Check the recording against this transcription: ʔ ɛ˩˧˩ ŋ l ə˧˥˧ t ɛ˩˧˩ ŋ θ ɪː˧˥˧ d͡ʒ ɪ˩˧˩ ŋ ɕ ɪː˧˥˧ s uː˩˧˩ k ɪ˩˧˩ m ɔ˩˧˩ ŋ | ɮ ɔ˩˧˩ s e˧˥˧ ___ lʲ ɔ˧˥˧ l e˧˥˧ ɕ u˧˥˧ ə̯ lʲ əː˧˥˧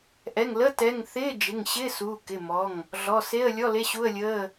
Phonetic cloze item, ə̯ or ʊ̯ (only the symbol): ə̯